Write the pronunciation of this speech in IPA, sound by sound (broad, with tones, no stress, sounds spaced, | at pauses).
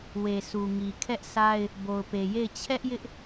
w e˨ s u˨ ŋ i˨ kʰ ɛ˦ ʔ s a˦ ɪ̯ | b o˨ ʊ̯ p e˨ j e˦˨ ɪ̯ t͡ɕʰ ɛ˦ ʔ j ɪ˦ ʔ